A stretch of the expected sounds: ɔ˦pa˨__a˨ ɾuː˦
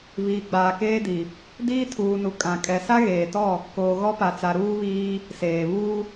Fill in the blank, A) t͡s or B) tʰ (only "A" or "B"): A